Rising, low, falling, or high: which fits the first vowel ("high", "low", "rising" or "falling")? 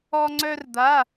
high